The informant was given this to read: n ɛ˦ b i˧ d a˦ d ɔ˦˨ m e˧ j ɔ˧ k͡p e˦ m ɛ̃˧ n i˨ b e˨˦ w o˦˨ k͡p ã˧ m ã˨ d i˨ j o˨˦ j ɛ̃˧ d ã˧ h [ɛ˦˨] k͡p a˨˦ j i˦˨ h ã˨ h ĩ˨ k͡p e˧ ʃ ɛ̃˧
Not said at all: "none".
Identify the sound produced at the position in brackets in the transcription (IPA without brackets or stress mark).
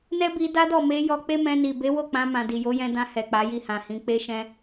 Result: ɛ˨